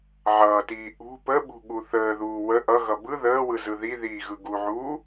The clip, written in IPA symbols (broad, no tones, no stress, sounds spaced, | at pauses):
ʕ ʌː t iː ʔ ṳ p ə ɓ ṳ ɠ u θ əː ð uː w ə ʔ ʌ ɣ ʌ b ɯ ð əː w ɯ z ɯ ð i ð iː ɣ ɯ ɡ u ʕ uː